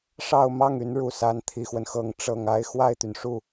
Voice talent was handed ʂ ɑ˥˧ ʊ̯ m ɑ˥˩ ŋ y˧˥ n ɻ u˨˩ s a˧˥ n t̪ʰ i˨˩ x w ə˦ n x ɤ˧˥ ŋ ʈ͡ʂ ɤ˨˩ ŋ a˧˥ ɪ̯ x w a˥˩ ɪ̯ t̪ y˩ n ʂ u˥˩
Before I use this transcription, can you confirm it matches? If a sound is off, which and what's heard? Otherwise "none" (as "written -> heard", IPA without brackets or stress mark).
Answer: none